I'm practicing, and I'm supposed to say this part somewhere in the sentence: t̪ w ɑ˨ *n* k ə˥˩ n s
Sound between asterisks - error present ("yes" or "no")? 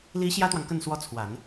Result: yes